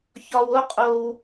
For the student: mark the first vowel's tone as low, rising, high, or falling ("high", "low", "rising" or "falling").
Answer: low